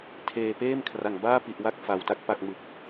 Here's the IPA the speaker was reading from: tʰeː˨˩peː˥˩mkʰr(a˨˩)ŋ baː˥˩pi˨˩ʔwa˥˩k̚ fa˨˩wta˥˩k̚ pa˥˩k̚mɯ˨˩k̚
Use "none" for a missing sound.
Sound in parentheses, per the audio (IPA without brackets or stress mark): a˨˩